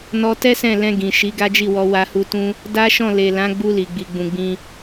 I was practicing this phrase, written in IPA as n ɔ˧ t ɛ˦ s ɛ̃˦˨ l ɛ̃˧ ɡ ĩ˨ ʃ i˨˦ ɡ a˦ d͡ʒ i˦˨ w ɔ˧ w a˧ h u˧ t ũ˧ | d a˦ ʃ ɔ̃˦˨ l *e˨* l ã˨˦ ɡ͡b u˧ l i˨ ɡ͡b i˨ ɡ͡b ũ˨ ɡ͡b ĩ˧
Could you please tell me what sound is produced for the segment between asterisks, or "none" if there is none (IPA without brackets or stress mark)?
e˨